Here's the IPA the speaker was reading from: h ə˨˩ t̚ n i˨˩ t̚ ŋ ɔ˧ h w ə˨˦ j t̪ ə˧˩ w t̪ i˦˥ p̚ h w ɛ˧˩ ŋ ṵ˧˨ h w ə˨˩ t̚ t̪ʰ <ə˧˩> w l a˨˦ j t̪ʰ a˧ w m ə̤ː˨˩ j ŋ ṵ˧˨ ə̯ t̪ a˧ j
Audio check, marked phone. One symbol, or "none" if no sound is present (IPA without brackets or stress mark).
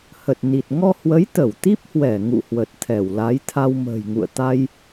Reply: ɛ˧˩